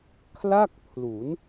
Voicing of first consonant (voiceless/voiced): voiceless